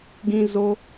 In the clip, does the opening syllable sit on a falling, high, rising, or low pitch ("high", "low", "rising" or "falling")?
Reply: high